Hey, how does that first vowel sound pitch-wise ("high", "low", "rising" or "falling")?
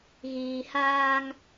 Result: low